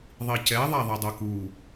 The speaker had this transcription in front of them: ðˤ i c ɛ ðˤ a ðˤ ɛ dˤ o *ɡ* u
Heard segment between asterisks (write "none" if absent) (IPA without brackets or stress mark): k